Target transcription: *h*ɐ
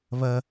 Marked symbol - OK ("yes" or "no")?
no